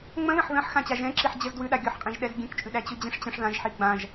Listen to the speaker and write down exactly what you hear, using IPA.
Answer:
ŋ͡mə̃ðə̃ħ ðə̃ħ xãt͡ɕaʒɛ̃ǁiħ d͡ʑəzdwʉ ɗaɡʲɔħqʼĩʒɗɛz ɡʲɛ̃kt͡ʃʼʉɗæ t͡ɕʉd͡ʑĩʂt͡ɕə̃ʂ ðãʒħi ɡ͡bãʒ

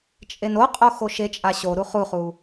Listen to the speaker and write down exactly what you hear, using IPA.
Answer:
t͡ʃʼenoqʼo xoʃet͡ʃʼa ɕoɾu χuχu

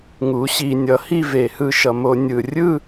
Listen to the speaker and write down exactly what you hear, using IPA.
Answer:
ŋu˩˥ɕi˧˩˧ nʲʌ˩˥hi˥˧ ve˧˩˧hɯ˥˧ʃʌ˧ mo˧nʲɯ˧˩˧ rʲɯ˥˧

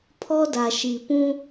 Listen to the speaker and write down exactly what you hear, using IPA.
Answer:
pʰɔ˦da˨ʃi˨ pũ˦

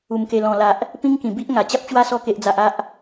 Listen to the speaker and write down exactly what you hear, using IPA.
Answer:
u˨˩mke˨˩lɔ̃˨˩la˨ʔ | pĩ˦ŋkĩ˨˩bi˦ʔ ŋa˨˩t͡ɕa˦p̚t͡ɕwa˦ sɔ˧ke˨ʔd͡za˨ʔ a˦ʔ

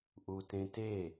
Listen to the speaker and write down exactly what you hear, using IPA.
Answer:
ʔutẽte

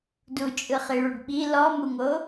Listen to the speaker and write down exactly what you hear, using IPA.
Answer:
dut͡ʃʼɯχiɭuɖ ɓi lɔmuŋo

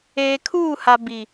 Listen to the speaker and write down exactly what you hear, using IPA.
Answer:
eː˨kʰuː˦˨ha˨ bi˨

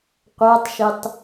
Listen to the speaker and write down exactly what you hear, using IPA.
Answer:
qʷætˤʃetˤ

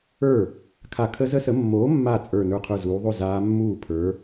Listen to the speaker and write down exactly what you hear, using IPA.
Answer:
ə˞˥˩ | kʰa˧˩kʰə˦˥zə˦˥sə˨˥ mːoː˨˥mːa˧˩ t͡sʼə˞˧˩ nə˞˧˩qʰə˞˧˩zuː˩˧ðˤo˥˩ zaː˦˥ mːuː˥˩pʰə˞˨˥

